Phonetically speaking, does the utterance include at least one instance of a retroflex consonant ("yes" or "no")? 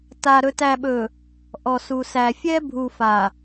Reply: no